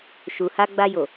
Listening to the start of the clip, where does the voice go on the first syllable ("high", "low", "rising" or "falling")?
low